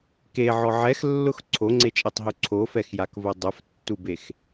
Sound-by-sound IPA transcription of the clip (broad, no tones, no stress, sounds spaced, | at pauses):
k e ʕ ɔ ʕ ɛ x lː ʊ x ǀʰ o ŋ͡ǀ e t͡ʃʼ e tˤ ɦ u ǀʰ o f ɛ x j a k v o dˤ ʊ f tː u b e x